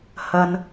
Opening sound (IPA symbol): h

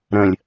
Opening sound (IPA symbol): ɾ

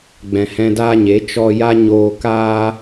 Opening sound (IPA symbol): ɡ͡b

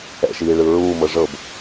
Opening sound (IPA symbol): ɛ̰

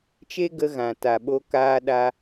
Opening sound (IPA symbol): t͡ʃ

